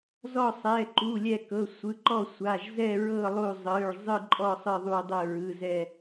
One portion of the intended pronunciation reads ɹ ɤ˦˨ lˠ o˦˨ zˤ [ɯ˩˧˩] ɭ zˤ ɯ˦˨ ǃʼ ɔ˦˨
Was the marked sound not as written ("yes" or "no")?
no